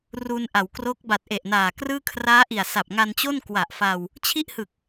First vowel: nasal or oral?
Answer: oral